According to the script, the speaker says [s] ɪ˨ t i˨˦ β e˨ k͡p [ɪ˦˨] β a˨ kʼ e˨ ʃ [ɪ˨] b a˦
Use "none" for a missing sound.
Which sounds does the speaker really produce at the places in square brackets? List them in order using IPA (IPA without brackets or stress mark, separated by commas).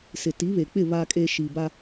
s, ɪ˦˨, i˨